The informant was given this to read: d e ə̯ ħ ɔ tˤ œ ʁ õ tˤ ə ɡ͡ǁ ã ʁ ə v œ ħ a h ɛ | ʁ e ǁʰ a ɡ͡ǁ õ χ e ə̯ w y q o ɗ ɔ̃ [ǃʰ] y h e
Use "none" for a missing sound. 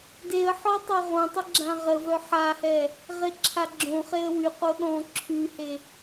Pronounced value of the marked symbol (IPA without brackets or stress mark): ǁʰ